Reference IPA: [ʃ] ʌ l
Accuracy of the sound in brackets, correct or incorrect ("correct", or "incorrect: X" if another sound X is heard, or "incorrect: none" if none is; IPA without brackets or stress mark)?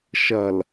correct